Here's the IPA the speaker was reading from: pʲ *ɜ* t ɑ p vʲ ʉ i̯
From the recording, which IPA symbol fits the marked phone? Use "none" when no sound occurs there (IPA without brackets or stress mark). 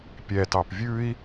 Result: ɛ